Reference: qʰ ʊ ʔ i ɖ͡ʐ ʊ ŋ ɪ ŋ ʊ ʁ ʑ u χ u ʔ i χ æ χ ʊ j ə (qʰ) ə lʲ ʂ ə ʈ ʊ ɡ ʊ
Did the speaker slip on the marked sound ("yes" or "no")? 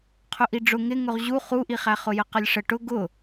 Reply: yes